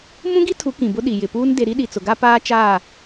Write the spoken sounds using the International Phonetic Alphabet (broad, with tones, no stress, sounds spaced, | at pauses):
m ũ˦ ɡ i˦ tʰ u˨˦ k ĩ˨ b ʊ˦ ɗ i˨ j ɪ˨ p uː˦ n d e˦ ɾ i˦ ɗ i˨ t͡s ʊ˨ ɡ a˦ p aː˦ t͡ʃ aː˦˨